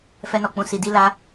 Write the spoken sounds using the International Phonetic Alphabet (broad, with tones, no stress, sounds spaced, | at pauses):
f ɛ˧ n ɔ˨ k͡p ũ˨ s i˨ d i˧ l a˧